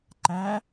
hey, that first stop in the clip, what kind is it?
click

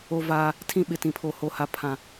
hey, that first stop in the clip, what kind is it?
aspirated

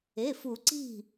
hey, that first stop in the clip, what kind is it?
click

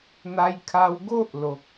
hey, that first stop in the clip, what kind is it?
aspirated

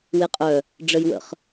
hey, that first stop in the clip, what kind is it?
ejective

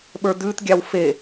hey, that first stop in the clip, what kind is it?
implosive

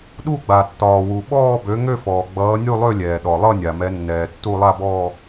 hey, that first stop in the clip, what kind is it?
implosive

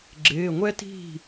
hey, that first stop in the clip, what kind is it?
click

